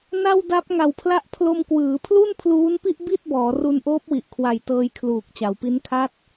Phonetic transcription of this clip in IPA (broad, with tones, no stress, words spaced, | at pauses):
na˥˩wda˦˥p̚ ŋa˨˩wpʰla˦˥ʔ pʰlo˧mkwɯː˩˦pʰlu˥˩n pʰluː˦˥npi˥˩ʔ bi˥˩t̚bɔː˩˦ ru˧nʔoː˦˥p̚wi˨˩ʔkʰwa˨˩j tɤː˧jkʰluː˨˩k̚t͡ɕa˩˦wpi˦˥n kʰa˦˥t̚